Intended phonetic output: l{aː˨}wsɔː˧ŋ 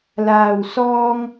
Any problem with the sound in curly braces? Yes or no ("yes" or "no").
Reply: no